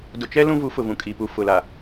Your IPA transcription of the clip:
d ʊ˨ t͡ʃ ɛ˦ l ũ˦ v u˨˦ f ʊ˨ v ũ˨ kʼ i˨ p u˨ f ʊ˨ l a˨

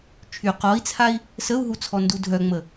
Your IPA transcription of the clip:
t͡ʃʰ y q ɔ i̯ t͡sʰ a i̯ | s ə u̯ ɦ u t͡sʰ ɔ n d u dʱ œ ŋ͡m ə

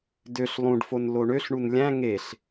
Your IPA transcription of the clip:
d ø ɬ lˠ ũ ɖ f o n l o ɳ ø ɬ ɳ u n lʲ æ̃ ŋ e ɬ

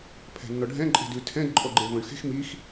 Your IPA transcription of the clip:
pʰ ɛ̤ nː ɔ ɖʱ ɛ̃ ǃʼ e̤ d ʉ tʰ ɛ̃ d ǃʼ ɔ ɡ͡ǃ e v ɔ̃ ɳ x e̤ x m i x

